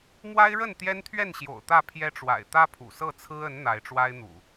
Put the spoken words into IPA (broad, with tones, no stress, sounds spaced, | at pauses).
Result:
m w a˦ ɪ̯ ɻ ə˥˨ n t̪ j ɛ˦ n t̪ʰ ɥ ɛ˥˨ n ɕ j o̰˨˩ ʊ̯ t̪ ä˥˨ pʰ j ɛ˦ ʈ͡ʂ w a̰˨˩ ɪ̯ t̪ ä˦ pʰ ṵ˨˩ s ɤ˥˨ t͡sʰ ɹ̩˦ ə˨˦ n n̪ a˨˦ ɪ̯ ʈ͡ʂ w a˦ ɪ̯ n̪ ṵ˨˩